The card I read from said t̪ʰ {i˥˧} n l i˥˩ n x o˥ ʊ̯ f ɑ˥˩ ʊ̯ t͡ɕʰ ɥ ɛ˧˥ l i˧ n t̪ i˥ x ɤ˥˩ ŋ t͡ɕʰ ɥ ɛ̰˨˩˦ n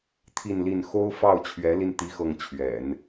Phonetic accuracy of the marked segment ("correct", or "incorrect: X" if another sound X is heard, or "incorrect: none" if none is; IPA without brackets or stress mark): correct